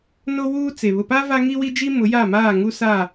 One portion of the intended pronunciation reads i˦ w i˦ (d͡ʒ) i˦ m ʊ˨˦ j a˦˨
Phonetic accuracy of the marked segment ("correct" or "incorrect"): correct